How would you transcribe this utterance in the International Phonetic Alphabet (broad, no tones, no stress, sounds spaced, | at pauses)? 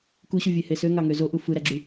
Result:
k u ɕ u vʲ e h e s ø ŋ ɑ ŋ ø z o ʔ u f ɯ ɾ æ ɡ͡ǁ y